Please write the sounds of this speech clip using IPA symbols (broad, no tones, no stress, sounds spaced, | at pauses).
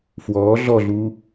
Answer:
f w ɔː ɮ ɔ ɮ uː